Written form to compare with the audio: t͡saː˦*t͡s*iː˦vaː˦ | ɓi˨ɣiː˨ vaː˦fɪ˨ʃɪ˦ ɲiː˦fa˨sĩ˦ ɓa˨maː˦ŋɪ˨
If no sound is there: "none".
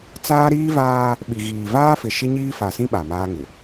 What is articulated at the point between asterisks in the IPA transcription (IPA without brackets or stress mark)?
ɾ